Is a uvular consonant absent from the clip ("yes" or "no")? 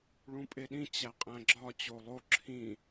no